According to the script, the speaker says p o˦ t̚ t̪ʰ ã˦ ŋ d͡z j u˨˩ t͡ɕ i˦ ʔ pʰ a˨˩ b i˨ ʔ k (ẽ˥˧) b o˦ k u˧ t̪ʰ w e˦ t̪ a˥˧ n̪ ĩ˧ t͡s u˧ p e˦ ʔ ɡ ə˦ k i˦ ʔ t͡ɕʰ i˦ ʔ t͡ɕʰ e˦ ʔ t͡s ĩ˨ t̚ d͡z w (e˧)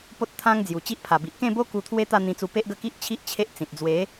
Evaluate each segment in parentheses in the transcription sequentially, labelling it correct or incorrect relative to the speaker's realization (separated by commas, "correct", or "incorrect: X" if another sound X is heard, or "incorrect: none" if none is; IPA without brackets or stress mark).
correct, incorrect: e˨˦